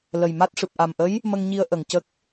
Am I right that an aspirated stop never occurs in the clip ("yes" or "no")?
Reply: yes